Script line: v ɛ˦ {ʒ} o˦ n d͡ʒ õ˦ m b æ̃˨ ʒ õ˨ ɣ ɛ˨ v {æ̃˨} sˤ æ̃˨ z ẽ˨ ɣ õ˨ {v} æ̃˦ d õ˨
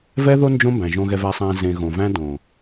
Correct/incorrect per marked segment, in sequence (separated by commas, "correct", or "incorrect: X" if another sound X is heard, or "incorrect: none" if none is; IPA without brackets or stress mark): incorrect: ð, incorrect: æ˨, correct